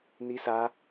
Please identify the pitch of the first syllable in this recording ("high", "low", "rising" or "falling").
high